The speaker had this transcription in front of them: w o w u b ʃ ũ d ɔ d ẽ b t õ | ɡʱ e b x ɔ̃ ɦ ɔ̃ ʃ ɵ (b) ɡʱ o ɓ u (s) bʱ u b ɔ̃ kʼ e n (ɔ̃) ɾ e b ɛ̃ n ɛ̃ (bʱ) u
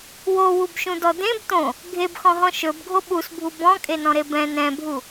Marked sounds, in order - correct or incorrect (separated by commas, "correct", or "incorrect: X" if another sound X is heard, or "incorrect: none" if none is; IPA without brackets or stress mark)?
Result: correct, correct, correct, correct